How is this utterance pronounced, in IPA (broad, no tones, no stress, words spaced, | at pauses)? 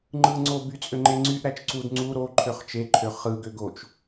ŋ͡ǃɯŋ͡ǀoby t͡sʼøŋ͡ǃeŋ͡ǀyʔ ɾæt͡ʃǀud ŋ͡ǀu ɾo ǃʰøχt͡ʃeǃʰø χɯɡø ɡot͡ʃ